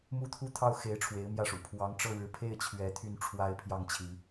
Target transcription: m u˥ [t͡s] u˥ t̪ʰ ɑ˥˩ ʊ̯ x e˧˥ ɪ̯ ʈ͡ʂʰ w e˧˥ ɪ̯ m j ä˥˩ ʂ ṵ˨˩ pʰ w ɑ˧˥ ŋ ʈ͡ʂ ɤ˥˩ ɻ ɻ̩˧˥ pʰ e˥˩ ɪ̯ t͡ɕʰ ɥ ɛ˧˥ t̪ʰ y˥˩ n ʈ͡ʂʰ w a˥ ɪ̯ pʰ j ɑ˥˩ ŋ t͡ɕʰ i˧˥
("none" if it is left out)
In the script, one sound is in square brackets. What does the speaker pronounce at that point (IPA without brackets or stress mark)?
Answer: t̪ʰ